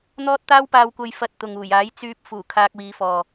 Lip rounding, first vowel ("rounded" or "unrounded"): rounded